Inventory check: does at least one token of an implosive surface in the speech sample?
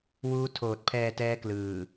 no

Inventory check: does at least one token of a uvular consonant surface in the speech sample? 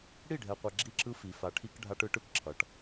yes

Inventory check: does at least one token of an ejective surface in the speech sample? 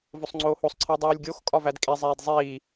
yes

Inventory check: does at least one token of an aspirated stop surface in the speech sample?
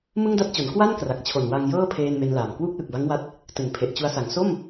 yes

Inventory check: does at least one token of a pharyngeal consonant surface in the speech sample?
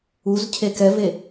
no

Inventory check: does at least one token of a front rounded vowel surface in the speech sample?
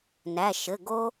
no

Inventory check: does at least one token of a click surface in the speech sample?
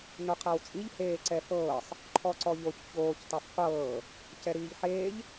yes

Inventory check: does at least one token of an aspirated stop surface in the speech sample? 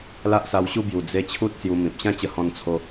yes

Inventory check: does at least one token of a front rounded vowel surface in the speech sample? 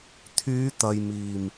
yes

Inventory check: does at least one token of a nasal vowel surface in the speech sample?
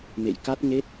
no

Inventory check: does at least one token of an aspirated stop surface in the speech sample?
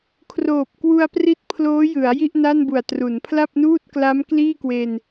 yes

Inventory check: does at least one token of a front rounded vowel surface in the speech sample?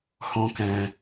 no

